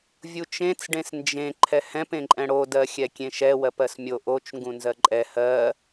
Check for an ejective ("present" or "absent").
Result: present